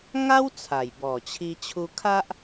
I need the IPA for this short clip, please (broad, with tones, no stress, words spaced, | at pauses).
ŋa˦w t͡sʰa˨˩jbɔ˨˩t͡ɕʰi˧ t͡ɕʰu˧kʰa˦ʔ